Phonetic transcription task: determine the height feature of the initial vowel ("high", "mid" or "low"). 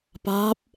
low